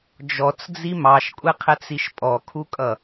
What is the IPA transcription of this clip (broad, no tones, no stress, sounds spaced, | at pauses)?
d͡ʒ ɔ t͡s d͡z i m ɑ ʃ kʷʼ ɛ qʰ ɛ t͡s i ʃ pʼ ɔ kʰ u kʼ ʌ